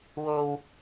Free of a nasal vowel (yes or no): yes